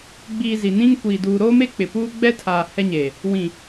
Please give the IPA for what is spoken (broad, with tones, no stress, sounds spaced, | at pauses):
ɡ͡b iː˨ z i˨ n ĩ˦ ŋ kʷ iː˨ d uː˨ ɾ oː˦ m e˦ k͡p ɪ˨ p uː˦ ɡ͡b ɛ˦ tʰ aː˨ h ɛ˦ ɲ eː˨ | w ĩ˨